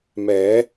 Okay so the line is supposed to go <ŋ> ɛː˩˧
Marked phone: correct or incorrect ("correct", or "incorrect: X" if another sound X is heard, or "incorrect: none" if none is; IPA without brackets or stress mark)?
incorrect: m